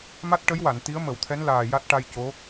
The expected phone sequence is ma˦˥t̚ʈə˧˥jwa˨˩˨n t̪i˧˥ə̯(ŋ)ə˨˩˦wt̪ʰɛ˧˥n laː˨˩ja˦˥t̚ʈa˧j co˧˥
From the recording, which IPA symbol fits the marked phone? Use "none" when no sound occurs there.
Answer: m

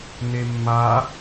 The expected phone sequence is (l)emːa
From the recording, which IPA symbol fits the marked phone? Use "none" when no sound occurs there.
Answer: n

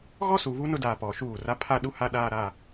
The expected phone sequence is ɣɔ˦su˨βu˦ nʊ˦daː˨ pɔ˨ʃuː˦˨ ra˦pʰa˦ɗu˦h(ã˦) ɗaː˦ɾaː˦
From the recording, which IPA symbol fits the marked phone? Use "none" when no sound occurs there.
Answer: a˦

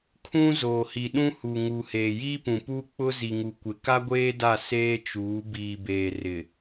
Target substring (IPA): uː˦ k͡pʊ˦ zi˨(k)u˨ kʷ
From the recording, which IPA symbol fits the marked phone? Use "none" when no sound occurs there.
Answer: ŋ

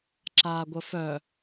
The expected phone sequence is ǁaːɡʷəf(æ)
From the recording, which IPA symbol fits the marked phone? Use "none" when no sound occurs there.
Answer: œ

